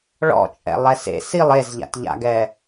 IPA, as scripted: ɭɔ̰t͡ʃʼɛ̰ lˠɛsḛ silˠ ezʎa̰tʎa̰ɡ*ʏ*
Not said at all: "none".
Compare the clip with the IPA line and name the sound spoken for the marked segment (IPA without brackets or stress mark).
ɛ